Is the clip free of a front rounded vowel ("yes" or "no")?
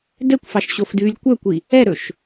no